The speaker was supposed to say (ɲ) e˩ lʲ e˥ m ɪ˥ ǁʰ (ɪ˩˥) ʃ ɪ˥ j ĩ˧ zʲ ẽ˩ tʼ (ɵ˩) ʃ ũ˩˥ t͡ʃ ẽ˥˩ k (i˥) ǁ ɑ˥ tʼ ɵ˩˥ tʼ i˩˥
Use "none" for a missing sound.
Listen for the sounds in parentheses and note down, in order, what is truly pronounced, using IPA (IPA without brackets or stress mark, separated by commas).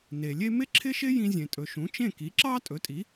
n, ɪ˥, ɵ˩, i˩˥